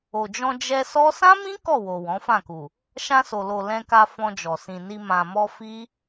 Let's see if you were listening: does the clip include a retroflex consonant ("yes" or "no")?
no